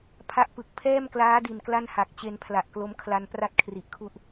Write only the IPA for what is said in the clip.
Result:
pʰ a˦˥ ʔ p ɯ˨˩ k̚ pʰ ɛː˥˩ m k l aː˦˥ d i˨˩ n k l a˥˩ n h a˨˩ k̚ t͡ɕ e˧ n pʰ l a˨˩ ʔ k l o˦˥ m kʰ l a˧ n p r a˥˩ t̚ kʰ r i˨˩ ʔ kʰ u˥˩ ʔ

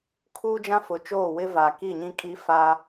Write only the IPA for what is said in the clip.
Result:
kʰ uː˦ d͡ʒ ã˦ f ʊ˨ t͡ʃ oː˦˨ w ɪ˦ v a˨ k i˦˨ ɲ ĩ˦ kʼ i˦ f a˦

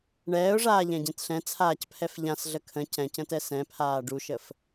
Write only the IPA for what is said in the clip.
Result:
ɳ ɛː ʊ̯ ʐ aː ʎ ɛ̃ ɟ ẽ t ɬ ɛ̃ t͡sʰ aː c pʰ ɛ f ʎ ã s ɮ ə kʰ ə̃ c ɛ̃ c ə̃ t ɛ s ɛ̃ pʰ aː ɖ u ʃ ə f

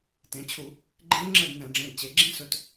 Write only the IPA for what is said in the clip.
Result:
t ẽ˩˧ t͡ɕʰ u˧˩˧ | ɡ͡ǃ ẽ˦˥ v ŋ͡ǁ ə˥˨ d n ɛ̃˧˩˧ ɖ͡ʐ ẽ˩˧˩ d t͡ɕ e˩˧ ɡ͡ǁ ẽ˦˥ s ɵ˩˧˩ t

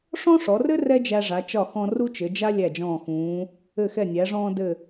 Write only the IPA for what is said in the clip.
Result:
ʂ ɔ̃˥ ʂ ɔ˩˧ r ɘ˥ r ɛ˥ d͡ʒ æ˧ ʐ a˩˧ t͡ʃ ɒ˧˩ x ɔ̃˧ r u˥ t͡ʃ ɘ˩˧ d͡ʒ a˥ lʲ æ˧˩ d͡ʒ ɔ̃ː˧˩ x ũː˩˧ | ɘ˧˩ x ɛ˧˩ nʲ æ˩˧ ʐ ɔ̃ː˧ d ɘ˧˩

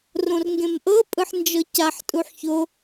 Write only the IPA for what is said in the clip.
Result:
r õ r ŋ ɡ ẽ m ʔ ɤ pʼ ɯ ħ n d͡ʒ ɤ c a ħ tʼ u ħ ç o

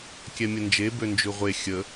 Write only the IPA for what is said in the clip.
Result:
kʲ ɛ mʲ ə n d͡ʒ e b ø n d͡ʒ ʉ ʁʷ e xʲ ə

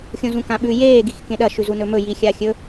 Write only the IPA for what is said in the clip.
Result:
xʲ õ z ũ k ã ɓ ʉ j eː ɡ i x k ẽ ɗ ɐ ʃ ʉ z u n ɵ m ɵ j i xʲ a xʲ ɵ

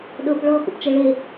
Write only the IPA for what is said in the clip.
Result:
ɗ ɤ p ɭ ɔ x ṵ p t͡ʃ ɤ ɭ e

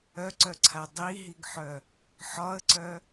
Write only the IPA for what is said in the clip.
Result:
œ ǀ œ ǀʰ a dˤ i ɦ i ɡ ħ œ | ħ ɒ ə̯ ǀ œ

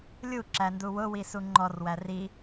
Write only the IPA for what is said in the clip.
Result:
lʲ u ǁ æ n d u w ʊ w i s u ŋ͡ǃ ɔ r w æ r i

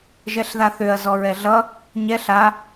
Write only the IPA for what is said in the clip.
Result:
ʒ ɛ ɬ ð a θ ø ɐ̯ z ɔ ɹ ɛ ɮ ʌ | ɲ ɛ ɬ a

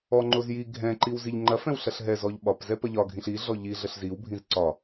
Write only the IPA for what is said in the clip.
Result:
ɔ ŋ͡ǃ o z j i ɡʱ ɛ̃ ǃ i w z i ʎ ŋ͡ǃ ɐ f ɛ̃ w ɬ ɐ ɬ ɦ ɛ z ɔ ʎ ɓ ɒ p z ɛ p ɐ ʎ ɒ ɡʱ ĩ ɬ i ɮ ɔ ʎ i ɮ ə ɬ z i w bʱ ĩ z ǀ ɒ

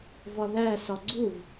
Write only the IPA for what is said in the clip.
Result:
v ɒ ð æ s ɒ ɡ͡ǀ u v

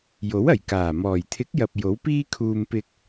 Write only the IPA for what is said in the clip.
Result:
j o˨˥ w ɐ˨˩ j k aː˨˩ m ɔː˨˩ j t̪ʰ ɪ˨˥ k̚ j ɐ˨ p̚ j o˨˥ w p iː˥ kʰ uː˧ m p ɪ˧ k̚

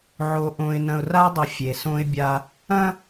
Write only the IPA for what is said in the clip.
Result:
ʕ o˨ ʔ õ˨ ɪ̯ n ɐ̃˨ ʊ̯ r a˦ dˤ ɐ˨ fʲ e˨ s õ˦ ɪ̯ bʲ a˦ | ɐ̃˦

